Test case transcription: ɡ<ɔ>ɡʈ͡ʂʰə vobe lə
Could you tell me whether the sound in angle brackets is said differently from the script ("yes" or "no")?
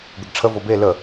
yes